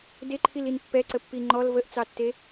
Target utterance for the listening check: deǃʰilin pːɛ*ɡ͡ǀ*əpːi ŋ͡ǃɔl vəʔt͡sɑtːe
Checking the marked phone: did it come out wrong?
yes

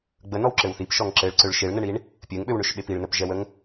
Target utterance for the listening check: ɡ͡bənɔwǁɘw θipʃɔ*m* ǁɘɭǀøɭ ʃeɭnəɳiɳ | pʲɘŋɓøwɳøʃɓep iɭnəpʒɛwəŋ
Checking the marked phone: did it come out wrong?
yes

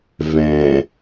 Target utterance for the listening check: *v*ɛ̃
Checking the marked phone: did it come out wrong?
no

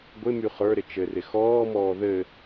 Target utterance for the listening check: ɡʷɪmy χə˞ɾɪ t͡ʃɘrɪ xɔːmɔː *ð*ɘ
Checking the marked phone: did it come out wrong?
no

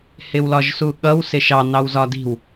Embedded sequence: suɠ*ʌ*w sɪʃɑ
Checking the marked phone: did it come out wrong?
no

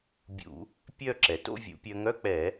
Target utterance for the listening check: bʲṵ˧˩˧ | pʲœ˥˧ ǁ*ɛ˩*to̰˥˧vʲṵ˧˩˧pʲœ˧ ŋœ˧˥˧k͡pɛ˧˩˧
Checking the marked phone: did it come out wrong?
no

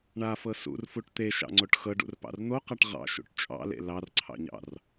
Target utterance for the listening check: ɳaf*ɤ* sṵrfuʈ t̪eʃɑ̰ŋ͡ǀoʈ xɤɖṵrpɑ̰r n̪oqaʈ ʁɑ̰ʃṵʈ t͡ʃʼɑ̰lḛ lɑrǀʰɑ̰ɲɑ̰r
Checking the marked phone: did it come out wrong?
no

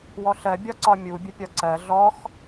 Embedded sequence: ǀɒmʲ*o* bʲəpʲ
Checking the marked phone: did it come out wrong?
yes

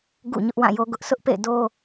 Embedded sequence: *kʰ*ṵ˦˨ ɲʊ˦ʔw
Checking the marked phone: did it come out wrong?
yes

